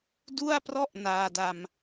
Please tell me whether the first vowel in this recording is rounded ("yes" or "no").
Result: yes